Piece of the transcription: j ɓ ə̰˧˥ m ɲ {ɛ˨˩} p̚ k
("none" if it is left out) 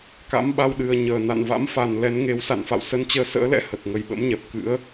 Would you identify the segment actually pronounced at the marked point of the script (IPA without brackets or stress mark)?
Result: ɛ˨˩